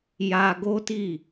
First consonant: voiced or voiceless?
voiced